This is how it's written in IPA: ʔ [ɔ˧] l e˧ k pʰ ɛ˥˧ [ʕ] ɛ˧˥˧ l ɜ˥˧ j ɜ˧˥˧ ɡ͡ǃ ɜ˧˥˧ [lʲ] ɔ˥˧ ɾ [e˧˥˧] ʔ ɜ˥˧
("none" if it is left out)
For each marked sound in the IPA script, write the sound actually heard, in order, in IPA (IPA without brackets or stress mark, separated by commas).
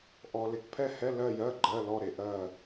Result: ɔ˧, h, l, e˧